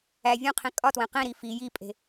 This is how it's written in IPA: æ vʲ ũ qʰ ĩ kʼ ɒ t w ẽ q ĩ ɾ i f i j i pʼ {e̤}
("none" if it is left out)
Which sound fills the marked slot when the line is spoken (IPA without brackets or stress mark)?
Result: e̤